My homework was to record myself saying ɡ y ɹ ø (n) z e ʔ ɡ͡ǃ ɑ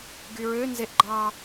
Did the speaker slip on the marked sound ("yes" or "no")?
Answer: no